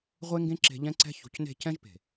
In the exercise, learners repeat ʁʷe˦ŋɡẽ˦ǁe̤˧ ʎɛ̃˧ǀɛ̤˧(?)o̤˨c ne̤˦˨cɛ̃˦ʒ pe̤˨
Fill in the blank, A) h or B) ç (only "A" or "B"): B